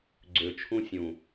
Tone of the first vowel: low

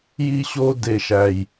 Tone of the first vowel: high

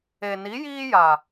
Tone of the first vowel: low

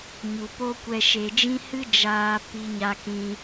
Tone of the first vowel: low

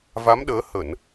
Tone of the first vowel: rising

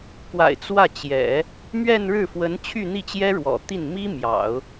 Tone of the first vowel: low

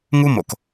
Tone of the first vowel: high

